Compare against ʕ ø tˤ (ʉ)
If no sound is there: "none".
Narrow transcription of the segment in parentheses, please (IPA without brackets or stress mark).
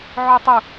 u